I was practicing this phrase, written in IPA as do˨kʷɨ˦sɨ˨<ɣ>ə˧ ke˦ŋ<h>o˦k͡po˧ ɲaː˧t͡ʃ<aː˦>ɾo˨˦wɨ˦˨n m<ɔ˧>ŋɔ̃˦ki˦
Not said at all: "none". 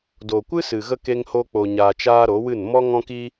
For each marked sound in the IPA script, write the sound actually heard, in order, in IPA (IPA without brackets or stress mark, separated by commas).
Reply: ɣ, h, aː˦, ɔ˦